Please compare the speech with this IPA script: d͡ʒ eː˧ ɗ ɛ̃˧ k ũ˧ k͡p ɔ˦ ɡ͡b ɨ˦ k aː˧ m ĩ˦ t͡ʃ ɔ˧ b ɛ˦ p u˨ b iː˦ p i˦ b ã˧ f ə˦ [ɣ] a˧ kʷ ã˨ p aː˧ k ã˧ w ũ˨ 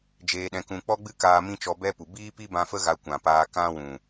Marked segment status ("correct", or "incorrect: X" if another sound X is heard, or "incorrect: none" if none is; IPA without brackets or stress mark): correct